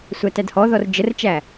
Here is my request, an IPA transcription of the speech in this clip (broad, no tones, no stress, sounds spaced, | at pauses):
sʷ æ t æ d h ɔ ð ɔ r d͡ʒ ə r t͡ʃ æ